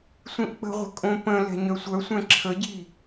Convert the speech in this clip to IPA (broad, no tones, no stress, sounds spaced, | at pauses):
sʷ ĩ ʔ k͡p ə̤ ʁʷ ə̤ kʼ õ p ə̃ l ɛ̤ ɲ œ sʷ œ sʷ ɛ̃ ǁʰ ə ɟ i